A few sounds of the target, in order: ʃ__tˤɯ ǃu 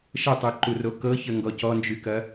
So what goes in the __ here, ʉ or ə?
ə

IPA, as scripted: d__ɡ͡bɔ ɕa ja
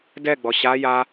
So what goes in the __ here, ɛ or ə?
ɛ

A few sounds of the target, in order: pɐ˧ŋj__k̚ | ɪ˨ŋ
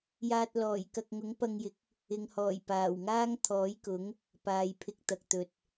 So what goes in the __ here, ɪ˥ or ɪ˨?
ɪ˨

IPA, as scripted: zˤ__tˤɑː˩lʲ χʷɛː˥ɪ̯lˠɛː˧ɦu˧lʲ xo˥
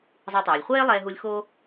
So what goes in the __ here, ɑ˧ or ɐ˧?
ɑ˧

